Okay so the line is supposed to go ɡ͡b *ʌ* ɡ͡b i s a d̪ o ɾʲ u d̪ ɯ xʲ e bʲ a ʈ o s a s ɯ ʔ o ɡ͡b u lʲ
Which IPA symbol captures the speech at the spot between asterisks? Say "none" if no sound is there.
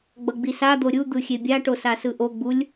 ʌ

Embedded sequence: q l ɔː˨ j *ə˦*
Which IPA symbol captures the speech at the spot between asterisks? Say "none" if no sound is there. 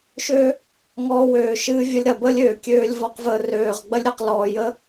ə˦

